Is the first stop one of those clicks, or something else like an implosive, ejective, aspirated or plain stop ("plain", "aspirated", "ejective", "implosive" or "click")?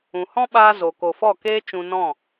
implosive